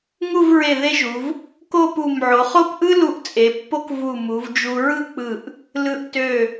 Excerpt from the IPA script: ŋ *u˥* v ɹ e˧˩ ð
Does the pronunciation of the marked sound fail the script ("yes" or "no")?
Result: yes